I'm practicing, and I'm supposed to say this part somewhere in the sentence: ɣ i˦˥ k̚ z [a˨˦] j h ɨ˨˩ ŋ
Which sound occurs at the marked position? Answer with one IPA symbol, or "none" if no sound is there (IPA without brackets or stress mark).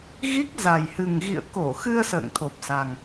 a˨˩